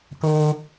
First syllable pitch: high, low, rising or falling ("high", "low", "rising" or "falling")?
high